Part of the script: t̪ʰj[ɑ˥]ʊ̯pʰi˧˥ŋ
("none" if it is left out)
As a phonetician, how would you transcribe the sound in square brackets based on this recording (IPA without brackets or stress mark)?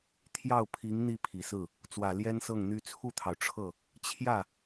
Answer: ɑ˥˩